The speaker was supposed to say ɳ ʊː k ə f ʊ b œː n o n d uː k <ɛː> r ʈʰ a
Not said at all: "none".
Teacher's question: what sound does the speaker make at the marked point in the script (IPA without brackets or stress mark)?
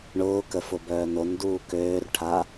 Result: øː